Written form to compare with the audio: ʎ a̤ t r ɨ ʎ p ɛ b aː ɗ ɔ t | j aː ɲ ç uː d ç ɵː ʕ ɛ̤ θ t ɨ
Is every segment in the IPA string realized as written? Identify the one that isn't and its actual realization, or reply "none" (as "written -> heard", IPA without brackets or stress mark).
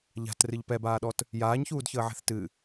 ɵː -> əː